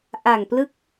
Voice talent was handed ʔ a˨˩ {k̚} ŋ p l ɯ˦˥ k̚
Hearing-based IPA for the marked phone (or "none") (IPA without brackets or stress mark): none